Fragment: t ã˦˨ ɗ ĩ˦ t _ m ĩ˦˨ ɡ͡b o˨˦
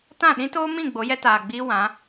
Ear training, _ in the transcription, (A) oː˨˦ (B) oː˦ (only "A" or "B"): B